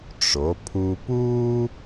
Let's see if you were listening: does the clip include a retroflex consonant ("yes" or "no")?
yes